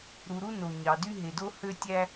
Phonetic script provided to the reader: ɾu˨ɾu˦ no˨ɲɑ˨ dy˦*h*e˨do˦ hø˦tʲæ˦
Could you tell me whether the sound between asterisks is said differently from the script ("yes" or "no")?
yes